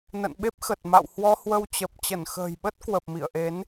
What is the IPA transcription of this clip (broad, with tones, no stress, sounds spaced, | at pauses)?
n ə̰˧˨ n ɓ e˦˥ p̚ x ə˨˩ t̚ m a̰˧˨ w h w ɔ˧ h w ə˧ w t͡ɕ ə˨˩ p̚ t͡ɕ ə˧˩ n x ə̤ː˨˩ j ɓ ə˦˥ t̚ k w ə˨˩ p̚ m ḭ˧˨ ə̯ ʔ e˨˦ n